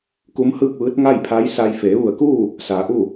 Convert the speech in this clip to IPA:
k u˧˥ m h ɯː˥˨ k̚ ʋ ɯː˧˥ t̚ ŋ a˥˨ j pʰ a˧˥ j s a˧ j f eː˩˧ ʋ u˧˩ ə̯ k uː˥˨ | s aː˩˧ ʔ u˥˨

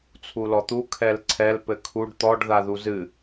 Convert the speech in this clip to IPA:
t͡sʰ u l ɔ t̪ u kʰ ɛ l ǀʰ ɛ l p ɘ kʰ u ɖ t̪ ɔ ɖ ð a ð u z ɨ

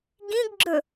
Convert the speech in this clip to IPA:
ɡ ĩ ɡ ɡ͡ǁ ɵ

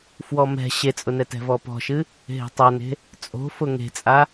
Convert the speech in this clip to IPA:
f w ɔ m ɛ̤ ɕ e t͡sʼ ʊ n ɛ t ɛ̤ v ɔ p ɔ̤ ʃ ɨ | ɦ e̤ tˤ a n e̤ | t͡sʼ o̤ f ʊ ŋ e̤ t͡sʼ a

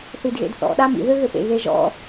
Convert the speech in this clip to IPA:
θ i d ɣ ḛ d θ ɔ̰ ɗ a m ḭ ð ø ɣ ø p ḛ ɣ e ʒ ɔ̰

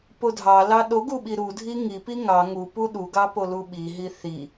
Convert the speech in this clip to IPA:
p o dʱ ɑ l ɑ ɗ o ɡ u ɓ i ɾ u dʱ i ŋ i p i ŋ ɑ ŋ u p u ɗ u ɡ ɑ p o l u ɓ i ɦ i θ i

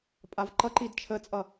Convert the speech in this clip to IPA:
pʼ a v ǃ ʌ ǃ i d t͡ʃʰ ə t͡sʼ ʌ

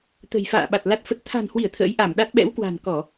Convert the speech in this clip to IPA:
t̪ ə̤˨˩ j f a̰ː˧˨ ɓ a˨˩ t̚ l a˦˥ t̚ f ə˦˥ t̚ t̪ʰ a̤˨˩ n h w i˧˩ ə̯ t̪ʰ ə̰ː˧˥ j ʔ a˧˩ m ɗ a˦˥ t̚ ɓ ɛ̰˧˥ w k w a̤˨˩ n k ɔ˧˩˨

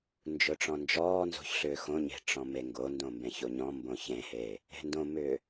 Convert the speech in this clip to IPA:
n d͡ʒ ʊ ʈ͡ʂ ɔ̃ n d͡ʒ ɔː n z o̤ ç ɬ ʏː x õ ɲ e̤ ʈ͡ʂ ɔ̃ m e ŋ ɡ o n d õ m b ẽ ç o ɲ ɔ̃ m b õ ç ẽ h eː | e̤ n d õ m ʏː

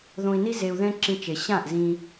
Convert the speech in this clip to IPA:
ð õ˧ i̯ n i˦ z e˧ u̯ ð ɛ̃˦ ǁ ĩ˧ t͡ʃ e˨ ɕ ã˦˨ ʔ z ĩ˧

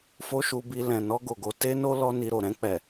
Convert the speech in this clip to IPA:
f o˦ ʃ u˧ b i˧ l ɛ̃˨ n ɔ˧ ɡ o˨ ɡ o˧ t e˦ n o˦ l ɔ˦ n i˧ ɾ o˨ ɾ ɛ̃˧ k͡p ɛ˨

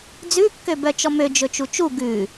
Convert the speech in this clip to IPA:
d͡z ʉ kː ø b œ t͡ʃ ɔ m ø d͡ʒ ɵ t͡ʃ u t͡ʃ u ɡ ʉ

